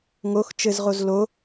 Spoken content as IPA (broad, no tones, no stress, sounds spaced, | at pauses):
ŋ o x t͡ʃ ɘ z ʁ o z l o